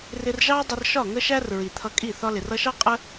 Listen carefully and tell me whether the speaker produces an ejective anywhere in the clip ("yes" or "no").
yes